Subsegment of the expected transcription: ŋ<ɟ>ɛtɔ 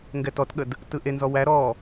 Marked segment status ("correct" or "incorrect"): incorrect